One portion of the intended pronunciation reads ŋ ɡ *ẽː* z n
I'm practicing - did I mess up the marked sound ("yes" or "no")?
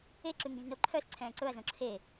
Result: yes